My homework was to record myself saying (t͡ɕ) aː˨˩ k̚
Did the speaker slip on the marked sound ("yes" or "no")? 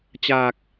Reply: no